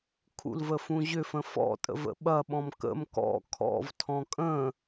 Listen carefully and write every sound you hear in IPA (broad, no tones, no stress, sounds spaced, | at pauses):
kʰ ṵ l v ə f ũ ʑ ʏ f ə̃ f ɔ̰ tʼ ə̰ v ə̰ ɓ ɐ ɓ ɔ̃ m k ə̰ m k ɔ̰ kʰ ɔ̰ v tʰ ɔ̃ kʼ ə̃